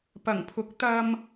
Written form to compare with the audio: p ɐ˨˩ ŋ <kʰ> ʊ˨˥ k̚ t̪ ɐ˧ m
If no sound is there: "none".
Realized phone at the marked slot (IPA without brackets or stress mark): pʰ